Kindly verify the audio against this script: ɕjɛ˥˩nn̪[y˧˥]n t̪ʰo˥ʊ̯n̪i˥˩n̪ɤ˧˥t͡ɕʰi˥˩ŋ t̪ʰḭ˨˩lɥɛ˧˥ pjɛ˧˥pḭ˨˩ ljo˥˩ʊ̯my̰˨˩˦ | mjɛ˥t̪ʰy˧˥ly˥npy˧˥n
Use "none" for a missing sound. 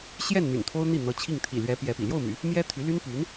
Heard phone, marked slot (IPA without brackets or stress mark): y̰˨˩